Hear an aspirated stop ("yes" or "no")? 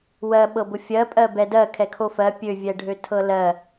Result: yes